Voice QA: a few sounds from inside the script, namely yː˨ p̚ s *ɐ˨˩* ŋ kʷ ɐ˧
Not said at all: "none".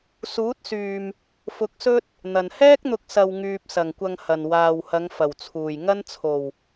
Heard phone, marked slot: ɐ˨˩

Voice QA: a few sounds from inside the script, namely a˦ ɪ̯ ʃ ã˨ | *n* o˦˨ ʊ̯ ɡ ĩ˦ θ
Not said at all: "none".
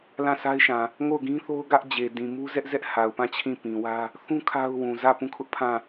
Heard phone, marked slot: ŋ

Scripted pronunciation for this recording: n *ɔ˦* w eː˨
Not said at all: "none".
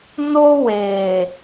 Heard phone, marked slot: o˦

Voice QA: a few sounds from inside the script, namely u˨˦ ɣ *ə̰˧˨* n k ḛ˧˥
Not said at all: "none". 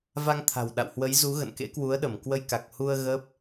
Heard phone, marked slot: ə̰˧˨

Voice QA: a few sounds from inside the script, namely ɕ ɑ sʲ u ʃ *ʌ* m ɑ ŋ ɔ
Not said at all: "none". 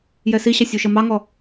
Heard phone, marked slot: ʌ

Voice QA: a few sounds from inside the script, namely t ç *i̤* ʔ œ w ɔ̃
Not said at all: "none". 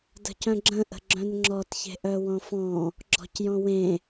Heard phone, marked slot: e̤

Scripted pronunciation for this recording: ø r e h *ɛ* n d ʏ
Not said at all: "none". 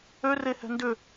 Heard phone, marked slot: ɛ̤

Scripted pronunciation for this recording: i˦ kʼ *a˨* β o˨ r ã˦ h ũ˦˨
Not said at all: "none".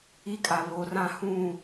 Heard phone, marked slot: a˨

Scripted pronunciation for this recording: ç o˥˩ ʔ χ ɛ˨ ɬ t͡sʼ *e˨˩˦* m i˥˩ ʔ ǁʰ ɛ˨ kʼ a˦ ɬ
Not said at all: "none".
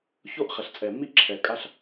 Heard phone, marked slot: ɛ˨˩˦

